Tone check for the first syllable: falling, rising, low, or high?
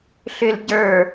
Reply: low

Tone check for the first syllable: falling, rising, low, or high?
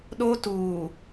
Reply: high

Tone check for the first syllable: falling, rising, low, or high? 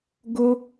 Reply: high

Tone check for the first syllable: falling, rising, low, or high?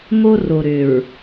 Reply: high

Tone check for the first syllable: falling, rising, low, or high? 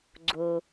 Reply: low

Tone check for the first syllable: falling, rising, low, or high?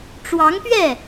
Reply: rising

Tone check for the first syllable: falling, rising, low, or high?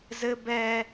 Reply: high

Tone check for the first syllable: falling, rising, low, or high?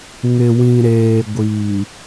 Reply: low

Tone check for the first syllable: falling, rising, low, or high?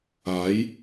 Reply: rising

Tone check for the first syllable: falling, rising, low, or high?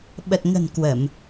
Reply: low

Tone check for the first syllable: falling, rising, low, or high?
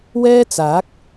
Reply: high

